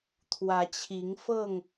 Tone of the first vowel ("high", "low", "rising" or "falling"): rising